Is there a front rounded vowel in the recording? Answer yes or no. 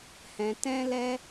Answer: no